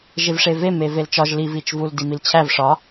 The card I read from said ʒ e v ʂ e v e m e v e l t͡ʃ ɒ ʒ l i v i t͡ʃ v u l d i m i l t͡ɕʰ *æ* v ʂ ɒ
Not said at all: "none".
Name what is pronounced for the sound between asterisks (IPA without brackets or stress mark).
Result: æ